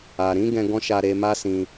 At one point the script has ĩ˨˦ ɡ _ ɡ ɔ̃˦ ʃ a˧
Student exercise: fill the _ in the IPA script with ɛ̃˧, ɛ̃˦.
ɛ̃˧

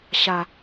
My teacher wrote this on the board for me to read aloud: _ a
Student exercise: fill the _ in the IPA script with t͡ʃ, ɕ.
ɕ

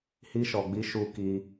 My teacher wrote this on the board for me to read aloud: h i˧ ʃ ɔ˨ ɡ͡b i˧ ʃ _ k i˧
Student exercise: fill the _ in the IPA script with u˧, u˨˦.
u˧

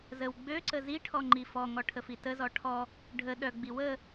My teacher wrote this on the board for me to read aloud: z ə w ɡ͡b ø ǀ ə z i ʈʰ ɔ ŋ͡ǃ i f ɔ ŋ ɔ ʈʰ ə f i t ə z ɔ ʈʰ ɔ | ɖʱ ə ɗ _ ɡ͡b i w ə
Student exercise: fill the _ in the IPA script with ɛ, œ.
œ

